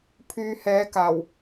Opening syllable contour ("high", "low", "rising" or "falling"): low